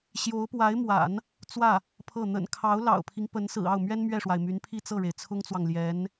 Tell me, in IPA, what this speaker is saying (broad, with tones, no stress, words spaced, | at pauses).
ɕjo˧˥ʊ̯pwa˧˥ɪ̯mwa̰˨˩˦n | t͡swä˥˩ | pʰɤ˥˩ n̪ə̰˨˩nkʰɑ˧˥ʊ̯ lɑ̰˨˩ʊ̯pʰi˦ŋpə˧˥nsɹ̩˨˩ ɑ˥˩ʊ̯mɥɛ˥n mɥɛ˥˩ʂwa˩ɪ̯ my˧˥npʰi˥˧t͡sɤ˥˩ɻe˩ɪ̯ t͡sʰʊ˥ŋt͡swɑ˨ŋ ljɛ˧˥n